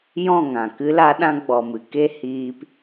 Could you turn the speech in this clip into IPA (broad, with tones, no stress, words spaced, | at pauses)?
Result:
jɔ̃˦˨ŋã˨ kɨ˦la˦ɗã˦ ɡ͡bɔ˨mɨ˨ ke˦ hiː˧p